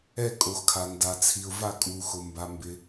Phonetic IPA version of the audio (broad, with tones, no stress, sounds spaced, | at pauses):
ɛ˦˨ kʼ o˩ x kʰ a˩ n d a˩ t͡sʰ i˩ ʊ̯ v a˦˨ kʼ u˩ x ʊ˩ m b a˩ m b ɪ˩